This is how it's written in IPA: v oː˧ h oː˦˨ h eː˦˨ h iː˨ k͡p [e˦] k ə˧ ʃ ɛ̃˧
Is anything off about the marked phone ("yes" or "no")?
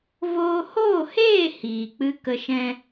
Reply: yes